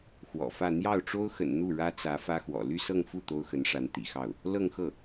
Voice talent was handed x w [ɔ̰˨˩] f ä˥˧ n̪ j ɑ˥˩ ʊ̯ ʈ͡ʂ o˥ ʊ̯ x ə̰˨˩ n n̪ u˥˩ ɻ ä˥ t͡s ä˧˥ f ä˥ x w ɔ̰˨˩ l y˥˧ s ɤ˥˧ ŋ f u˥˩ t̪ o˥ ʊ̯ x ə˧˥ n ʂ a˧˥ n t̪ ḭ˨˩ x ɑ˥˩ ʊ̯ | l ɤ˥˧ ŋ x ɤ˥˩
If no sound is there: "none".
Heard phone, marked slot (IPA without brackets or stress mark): ɔ̰˨˩